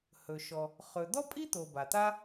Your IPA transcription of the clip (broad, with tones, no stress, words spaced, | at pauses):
hɵ˩ ʃɔ˩ | χɵ˩d̪ɔ˥pʼi˥t̪o˩ ba˩t̪a˥